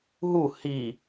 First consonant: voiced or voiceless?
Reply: voiced